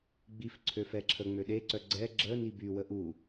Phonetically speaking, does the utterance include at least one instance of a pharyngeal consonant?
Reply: no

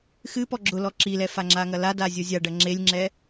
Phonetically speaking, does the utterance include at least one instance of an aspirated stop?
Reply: no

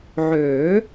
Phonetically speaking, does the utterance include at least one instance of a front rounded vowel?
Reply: yes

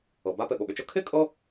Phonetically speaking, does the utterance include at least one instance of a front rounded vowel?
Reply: yes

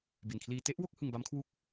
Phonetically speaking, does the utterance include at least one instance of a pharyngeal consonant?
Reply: no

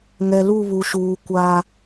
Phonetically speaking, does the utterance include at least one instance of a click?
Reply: no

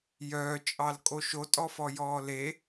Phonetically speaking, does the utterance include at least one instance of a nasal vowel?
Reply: no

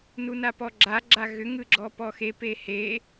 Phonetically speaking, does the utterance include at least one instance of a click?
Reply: yes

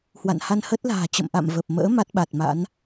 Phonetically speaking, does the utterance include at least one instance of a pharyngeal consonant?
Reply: no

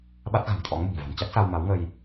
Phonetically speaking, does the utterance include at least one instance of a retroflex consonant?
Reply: no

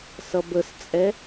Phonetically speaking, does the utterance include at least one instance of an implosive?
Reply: no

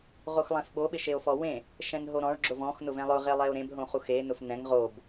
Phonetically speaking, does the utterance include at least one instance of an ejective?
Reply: no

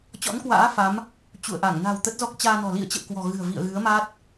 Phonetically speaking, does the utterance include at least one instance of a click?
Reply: no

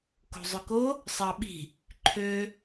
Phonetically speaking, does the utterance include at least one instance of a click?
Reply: yes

